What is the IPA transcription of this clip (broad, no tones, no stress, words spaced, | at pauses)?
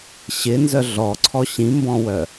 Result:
ɕɪnzœ ɮɔǀʰɔ ɕĩmbɔ̃wœ